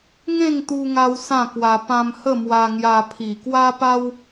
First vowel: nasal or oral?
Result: nasal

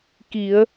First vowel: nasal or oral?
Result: oral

